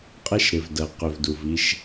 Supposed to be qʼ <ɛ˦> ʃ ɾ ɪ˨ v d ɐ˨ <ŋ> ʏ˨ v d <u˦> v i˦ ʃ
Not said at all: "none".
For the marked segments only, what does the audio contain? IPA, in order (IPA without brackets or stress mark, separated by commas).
ɛ˦, q, u˨